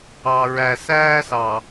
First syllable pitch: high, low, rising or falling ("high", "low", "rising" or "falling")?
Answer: low